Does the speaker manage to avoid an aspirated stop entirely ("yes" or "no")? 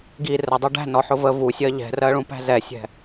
yes